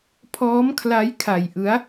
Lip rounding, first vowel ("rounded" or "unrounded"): rounded